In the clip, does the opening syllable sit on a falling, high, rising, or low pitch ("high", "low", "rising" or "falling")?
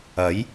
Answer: rising